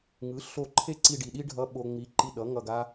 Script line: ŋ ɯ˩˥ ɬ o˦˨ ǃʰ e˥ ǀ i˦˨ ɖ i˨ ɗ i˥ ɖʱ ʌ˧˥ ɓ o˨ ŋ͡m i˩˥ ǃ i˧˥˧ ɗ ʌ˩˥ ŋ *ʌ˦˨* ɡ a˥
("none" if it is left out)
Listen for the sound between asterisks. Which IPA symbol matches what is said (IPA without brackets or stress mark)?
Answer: ʌ˦˨